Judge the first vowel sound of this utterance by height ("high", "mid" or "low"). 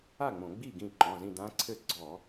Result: low